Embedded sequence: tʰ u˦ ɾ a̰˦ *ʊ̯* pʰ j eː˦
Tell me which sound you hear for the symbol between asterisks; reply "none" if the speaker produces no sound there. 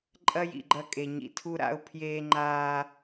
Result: ʊ̯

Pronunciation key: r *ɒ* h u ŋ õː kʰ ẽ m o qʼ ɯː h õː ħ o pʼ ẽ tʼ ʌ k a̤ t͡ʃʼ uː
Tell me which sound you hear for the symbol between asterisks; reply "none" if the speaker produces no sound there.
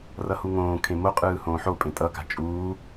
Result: ʌ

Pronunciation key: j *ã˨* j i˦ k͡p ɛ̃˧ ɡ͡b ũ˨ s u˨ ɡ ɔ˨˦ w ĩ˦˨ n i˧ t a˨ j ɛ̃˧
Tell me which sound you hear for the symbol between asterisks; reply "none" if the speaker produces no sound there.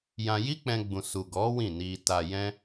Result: ã˧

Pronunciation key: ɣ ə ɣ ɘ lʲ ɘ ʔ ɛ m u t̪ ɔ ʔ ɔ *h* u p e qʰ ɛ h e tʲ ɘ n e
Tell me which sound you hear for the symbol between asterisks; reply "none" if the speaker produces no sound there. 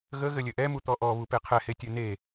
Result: β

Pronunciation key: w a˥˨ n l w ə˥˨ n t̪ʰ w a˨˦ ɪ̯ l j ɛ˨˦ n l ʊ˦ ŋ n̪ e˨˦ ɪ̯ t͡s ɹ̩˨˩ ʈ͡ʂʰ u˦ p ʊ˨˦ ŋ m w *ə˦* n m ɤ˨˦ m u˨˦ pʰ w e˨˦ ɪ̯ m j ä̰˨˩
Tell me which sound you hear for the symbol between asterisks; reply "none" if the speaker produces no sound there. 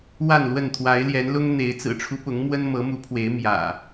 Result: ə˦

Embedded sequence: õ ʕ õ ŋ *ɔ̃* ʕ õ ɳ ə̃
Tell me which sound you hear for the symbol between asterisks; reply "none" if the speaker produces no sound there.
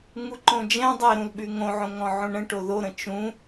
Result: ɔ̃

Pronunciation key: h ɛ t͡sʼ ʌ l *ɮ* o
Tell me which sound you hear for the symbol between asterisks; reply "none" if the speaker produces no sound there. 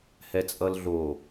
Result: ɮ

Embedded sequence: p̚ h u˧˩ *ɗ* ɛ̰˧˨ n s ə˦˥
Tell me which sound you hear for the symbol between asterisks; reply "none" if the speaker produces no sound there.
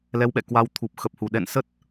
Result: ɗ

